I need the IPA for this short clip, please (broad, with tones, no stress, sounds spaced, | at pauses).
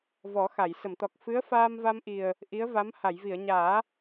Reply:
v ɔ˨˩˦ x a˨˩˨ j s ə˨˩˨ m t̪ ɔ˨˩ k̚ f ɨ˧˥ ə̯ f aː˧ m v a˧ m ʔ i˨˩ ə̯ | ʔ i˧˥ ə̯ v a˧˥ m h a˨˩˨ j v i˨˩˨ ə̯ ɲ aː˨˩˦